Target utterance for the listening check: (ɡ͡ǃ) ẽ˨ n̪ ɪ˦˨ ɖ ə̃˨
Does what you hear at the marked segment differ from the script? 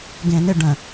yes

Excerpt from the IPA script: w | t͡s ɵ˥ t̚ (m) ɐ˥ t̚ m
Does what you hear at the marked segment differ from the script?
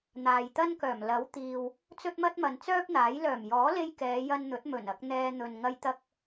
no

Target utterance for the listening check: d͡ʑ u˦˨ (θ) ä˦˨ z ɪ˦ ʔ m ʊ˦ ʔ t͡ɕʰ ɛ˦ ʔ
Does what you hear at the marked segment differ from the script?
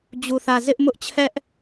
no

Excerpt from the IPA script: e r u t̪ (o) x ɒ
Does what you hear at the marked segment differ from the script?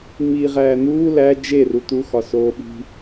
yes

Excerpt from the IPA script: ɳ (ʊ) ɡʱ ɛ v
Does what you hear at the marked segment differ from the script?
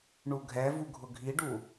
yes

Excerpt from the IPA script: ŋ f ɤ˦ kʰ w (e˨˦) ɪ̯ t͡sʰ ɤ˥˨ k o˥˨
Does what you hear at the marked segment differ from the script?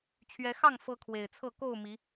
yes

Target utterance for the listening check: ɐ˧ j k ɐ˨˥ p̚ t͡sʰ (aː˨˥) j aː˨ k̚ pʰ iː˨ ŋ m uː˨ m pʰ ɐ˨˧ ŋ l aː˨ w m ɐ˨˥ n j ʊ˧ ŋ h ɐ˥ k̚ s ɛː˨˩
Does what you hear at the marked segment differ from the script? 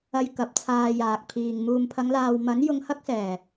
yes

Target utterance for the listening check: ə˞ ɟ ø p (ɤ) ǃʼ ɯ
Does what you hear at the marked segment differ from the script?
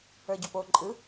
yes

